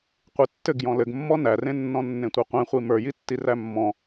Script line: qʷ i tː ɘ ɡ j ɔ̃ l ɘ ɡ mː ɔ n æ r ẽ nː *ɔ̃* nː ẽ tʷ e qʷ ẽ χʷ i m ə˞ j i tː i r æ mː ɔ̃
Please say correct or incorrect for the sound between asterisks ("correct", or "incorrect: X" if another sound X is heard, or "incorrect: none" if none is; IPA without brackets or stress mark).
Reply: correct